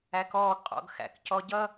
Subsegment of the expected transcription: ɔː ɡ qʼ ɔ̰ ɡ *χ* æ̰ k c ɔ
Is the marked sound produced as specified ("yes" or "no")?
no